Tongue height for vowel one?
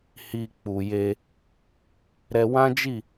high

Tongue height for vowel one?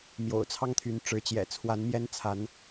mid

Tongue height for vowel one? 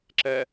mid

